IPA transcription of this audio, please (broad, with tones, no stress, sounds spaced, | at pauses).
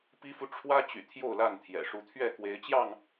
p i˦ f u˦ ʈ͡ʂʰ w ä˦ t͡ɕ y̰˨˩ t̪ʰ j o˥˨ ʊ̯ l a˥˨ n t̪ʰ j ɛ̰˨˩ ʂ u˨˦ t̪ʰ ɥ ɛ˥˨ k w e˨˦ ɪ̯ t͡ɕ j ɑ˥˨ ŋ